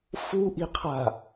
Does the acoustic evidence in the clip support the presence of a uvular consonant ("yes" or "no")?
yes